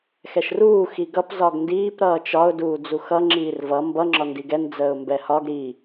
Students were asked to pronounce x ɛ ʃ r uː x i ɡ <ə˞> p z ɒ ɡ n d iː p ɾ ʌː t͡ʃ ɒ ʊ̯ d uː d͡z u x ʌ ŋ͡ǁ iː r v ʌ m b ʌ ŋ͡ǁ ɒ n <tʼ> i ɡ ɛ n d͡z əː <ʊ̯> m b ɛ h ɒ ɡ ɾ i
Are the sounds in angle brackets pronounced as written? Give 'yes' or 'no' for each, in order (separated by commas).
no, no, yes